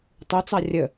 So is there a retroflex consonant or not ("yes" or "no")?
no